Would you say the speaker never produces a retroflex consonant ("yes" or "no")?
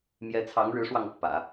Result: no